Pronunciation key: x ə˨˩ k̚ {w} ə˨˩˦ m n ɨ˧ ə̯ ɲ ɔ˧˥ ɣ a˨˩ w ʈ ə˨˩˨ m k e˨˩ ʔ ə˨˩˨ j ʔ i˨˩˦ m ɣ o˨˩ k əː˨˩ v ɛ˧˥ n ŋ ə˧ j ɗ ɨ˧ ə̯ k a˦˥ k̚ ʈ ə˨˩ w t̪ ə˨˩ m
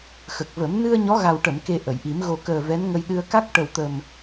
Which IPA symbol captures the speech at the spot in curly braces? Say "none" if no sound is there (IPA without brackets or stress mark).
v